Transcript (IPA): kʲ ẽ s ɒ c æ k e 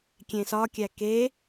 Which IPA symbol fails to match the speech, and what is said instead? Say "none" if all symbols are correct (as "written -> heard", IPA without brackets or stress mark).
c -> kʲ